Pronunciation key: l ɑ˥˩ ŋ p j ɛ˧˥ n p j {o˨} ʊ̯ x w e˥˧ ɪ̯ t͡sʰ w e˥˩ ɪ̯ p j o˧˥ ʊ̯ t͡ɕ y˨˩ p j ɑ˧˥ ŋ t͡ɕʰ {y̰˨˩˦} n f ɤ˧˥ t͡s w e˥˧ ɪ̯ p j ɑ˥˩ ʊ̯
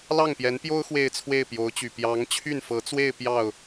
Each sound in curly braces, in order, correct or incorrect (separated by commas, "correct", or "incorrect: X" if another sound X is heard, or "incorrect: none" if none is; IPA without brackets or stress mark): incorrect: o˥, incorrect: y˥˩